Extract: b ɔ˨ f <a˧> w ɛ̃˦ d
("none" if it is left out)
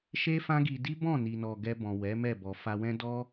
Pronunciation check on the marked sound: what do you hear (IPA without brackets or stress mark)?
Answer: a˧